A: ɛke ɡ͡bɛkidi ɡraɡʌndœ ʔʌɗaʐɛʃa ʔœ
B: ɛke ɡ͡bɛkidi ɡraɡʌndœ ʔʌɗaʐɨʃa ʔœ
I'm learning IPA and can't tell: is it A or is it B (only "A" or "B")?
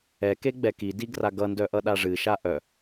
B